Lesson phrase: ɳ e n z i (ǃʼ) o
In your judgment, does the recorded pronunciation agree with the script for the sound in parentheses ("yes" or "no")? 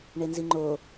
no